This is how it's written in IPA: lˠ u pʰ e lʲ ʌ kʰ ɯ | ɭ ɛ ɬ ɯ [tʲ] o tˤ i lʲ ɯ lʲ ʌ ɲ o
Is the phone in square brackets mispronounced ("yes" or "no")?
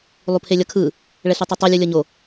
yes